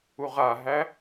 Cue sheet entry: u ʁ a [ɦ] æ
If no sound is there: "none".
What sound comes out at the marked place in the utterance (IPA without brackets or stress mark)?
ɦ